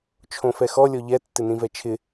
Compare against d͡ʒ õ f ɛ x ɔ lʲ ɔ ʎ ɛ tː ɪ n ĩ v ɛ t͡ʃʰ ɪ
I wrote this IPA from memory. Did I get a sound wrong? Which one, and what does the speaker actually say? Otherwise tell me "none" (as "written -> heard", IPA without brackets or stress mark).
d͡ʒ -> t͡ʃʰ